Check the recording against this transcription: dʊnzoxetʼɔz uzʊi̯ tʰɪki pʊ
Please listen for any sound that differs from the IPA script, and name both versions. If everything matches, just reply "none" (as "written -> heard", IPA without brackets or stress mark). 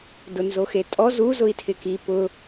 none